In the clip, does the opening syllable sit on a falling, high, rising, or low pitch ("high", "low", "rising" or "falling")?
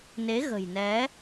rising